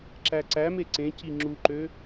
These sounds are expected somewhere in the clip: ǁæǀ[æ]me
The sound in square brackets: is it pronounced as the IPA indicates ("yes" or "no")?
yes